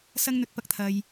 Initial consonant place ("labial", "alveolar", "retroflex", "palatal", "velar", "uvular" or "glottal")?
alveolar